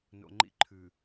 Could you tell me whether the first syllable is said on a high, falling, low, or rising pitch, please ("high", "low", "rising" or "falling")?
low